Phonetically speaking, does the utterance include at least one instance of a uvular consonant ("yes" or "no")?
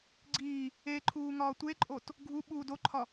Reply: no